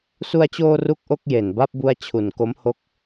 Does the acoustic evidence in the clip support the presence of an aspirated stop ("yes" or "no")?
yes